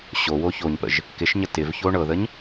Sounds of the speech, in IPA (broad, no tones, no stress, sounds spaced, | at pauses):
ɕ o w o ç o ɲ p ə̰ ʒ | k ɪ ʃ ɲ ə t ɪ v ç o ɳ ɤ ð ə ɲ